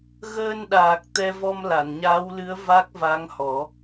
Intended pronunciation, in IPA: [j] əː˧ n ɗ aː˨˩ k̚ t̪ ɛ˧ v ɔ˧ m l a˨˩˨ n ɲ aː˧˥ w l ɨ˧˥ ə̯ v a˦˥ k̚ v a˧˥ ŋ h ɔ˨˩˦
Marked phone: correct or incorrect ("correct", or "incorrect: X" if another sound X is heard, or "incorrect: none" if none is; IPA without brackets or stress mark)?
incorrect: ɣ